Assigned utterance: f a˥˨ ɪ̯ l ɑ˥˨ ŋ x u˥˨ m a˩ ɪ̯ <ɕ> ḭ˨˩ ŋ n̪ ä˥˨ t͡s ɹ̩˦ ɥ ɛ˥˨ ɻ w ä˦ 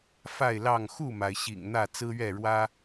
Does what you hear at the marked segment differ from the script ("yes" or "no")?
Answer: no